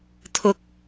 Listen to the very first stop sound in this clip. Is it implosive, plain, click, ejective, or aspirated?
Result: aspirated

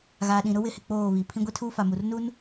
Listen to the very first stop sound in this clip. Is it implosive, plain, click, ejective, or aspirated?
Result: implosive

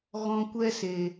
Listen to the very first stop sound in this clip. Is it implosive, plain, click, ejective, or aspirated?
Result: plain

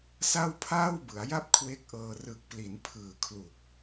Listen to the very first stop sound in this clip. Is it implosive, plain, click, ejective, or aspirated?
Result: aspirated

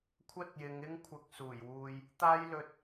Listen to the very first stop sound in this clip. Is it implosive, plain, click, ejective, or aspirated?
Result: aspirated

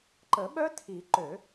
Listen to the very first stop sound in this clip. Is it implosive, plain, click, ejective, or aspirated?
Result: click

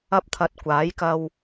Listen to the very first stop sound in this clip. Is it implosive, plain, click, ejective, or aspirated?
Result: plain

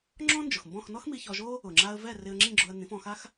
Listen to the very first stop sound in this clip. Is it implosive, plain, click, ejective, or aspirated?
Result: click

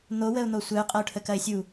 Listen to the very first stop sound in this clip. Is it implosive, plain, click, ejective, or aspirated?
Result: ejective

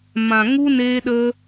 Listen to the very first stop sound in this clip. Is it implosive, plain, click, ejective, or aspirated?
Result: implosive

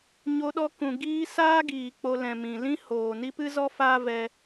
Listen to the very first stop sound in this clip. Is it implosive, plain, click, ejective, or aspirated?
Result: implosive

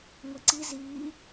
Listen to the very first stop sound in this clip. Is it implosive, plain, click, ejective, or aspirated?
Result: click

